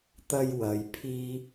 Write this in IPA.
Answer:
t̪ ɐ˥ j w ɐ˨˧ j pʰ iː˥

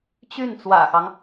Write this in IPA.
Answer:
t͡ɕ y˥˩ n t͡s w ä̰˨˩ x ɑ˦ ŋ

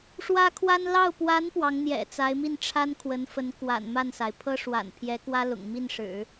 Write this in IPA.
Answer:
ʂ w ä˥ kʰ w a˥ n l ɑ˥˩ ʊ̯ p w a˧˥ n p w ɑ˧˥ ŋ n̪ j ɛ̰˨˩ t͡s a˧˥ ɪ̯ m i˥˩ n ʈ͡ʂʰ a˥ n kʰ w ə˧˥ n f ə˧˥ n k w a̰˨˩ n m a˥˩ n s a˩ ɪ̯ pʰ ɤ˥ ʂ w a̰˨˩ n pʰ j ɛ˧˥ k w ä˥ l ʊ̰˨˩ ŋ m i˥˩ n ʂ ɻ̩˨˩˦

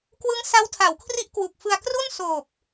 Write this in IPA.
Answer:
k w ɯ˦˥ ŋ s a˦˥ w tʰ a˩˦ w kʰ r i˦˥ ʔ k w u˨˩ k̚ f ɯ˧ a̯ k r u˥˩ n s oː˨˩ p̚

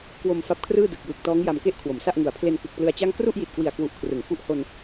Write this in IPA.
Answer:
k w o˧ m f a˦˥ p̚ kʰ r ɯː˥˩ d ɯ˨˩ k̚ j ɯː˨˩ k̚ t ɔː˦˥ ŋ j a˧ m k e˥˩ ʔ kʰ w o˩˦ m s a˥˩ ʔ ŋ u˩˦ a̯ pʰ l e˧ n k ɯ˨˩ k̚ p l ɯ˧ a̯ t͡ɕ a˥˩ ŋ k r u˥˩ ʔ j i˨˩ t̚ k w i˨˩ a̯ k w u˨˩ ʔ kʰ r ɯ˨˩ ŋ f u˥˩ ʔ h o˧ n

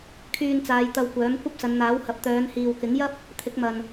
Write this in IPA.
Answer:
kʰ yː˧ n t͡s aː˨˧ j t̪ ɐ˧ w kʷ œː˨˥ m kʷ ɐ˥ p̚ s ɐ˨˧ n n̪ aː˨˥ w h ɐ˨˥ p̚ t̪ œː˨˧ n h iː˨ w k ɪ˨˥ ŋ j ɐ˥ p̚ | t̪ʰ ɪ˨˥ k̚ m ɐ˨ n

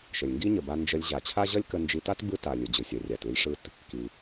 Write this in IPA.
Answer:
ʃ ə˩ lʲ ŋ ɡ i˥ ɲ ə˩ b a˧ n d͡ʒ ə˧ lʲ ʑ a˩ t͡ɕʰ a˥ ʑ ʌ˥ lʲ k ə˧ n d͡ʒ i˧ t a˥ t b ɯ˥ t a˩ lʲ ɯ˩ d͡ʑ ɯ˩ sʲ ʌ˩ rʲ a˩ t ɯ˧ lʲ ʂ ɯ˧ t | k i˩

